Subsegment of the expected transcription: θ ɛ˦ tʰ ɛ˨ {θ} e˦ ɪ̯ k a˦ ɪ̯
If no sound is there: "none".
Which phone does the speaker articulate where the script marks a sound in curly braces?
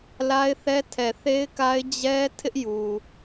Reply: θ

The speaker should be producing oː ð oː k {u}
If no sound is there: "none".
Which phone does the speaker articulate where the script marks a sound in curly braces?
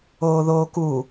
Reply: u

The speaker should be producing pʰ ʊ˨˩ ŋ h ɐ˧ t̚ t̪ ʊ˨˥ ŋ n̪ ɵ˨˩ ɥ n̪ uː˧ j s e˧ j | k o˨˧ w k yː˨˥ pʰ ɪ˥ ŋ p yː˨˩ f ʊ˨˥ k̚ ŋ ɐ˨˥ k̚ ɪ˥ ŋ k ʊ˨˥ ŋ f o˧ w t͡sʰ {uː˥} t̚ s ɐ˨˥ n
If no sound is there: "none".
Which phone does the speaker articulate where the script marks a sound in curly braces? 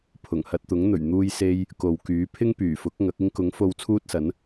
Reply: uː˥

